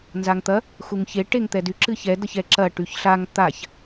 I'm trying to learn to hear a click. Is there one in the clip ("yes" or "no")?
yes